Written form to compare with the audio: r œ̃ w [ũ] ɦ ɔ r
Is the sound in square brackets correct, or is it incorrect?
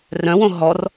incorrect